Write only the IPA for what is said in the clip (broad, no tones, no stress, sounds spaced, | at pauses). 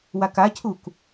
w a k a cʰ u k